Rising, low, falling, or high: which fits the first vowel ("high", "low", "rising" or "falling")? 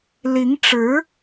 rising